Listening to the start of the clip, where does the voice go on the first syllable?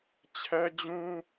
high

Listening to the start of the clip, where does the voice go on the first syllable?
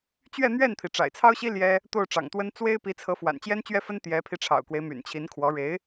falling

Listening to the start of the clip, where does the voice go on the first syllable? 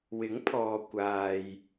rising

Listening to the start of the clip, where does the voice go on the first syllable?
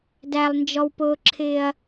low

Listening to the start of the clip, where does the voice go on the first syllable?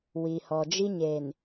low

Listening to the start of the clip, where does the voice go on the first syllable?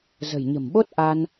low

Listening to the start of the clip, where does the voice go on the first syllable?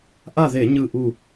falling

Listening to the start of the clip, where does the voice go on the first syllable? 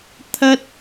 high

